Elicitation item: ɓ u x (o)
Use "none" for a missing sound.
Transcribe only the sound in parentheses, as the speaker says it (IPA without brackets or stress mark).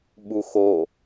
o